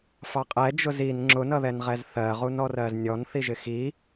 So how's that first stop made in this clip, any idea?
ejective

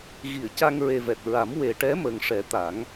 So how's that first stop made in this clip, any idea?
plain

